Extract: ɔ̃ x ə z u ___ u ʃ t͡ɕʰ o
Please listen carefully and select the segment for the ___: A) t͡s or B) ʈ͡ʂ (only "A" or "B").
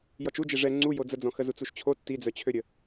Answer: A